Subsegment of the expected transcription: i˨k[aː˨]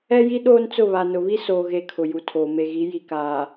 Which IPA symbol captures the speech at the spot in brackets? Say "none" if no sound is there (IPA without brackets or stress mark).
aː˨